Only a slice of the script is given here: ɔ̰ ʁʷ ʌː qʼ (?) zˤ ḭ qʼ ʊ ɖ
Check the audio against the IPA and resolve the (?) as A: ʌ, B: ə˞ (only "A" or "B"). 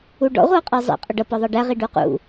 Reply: B